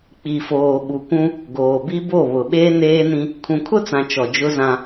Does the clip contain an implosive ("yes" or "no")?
yes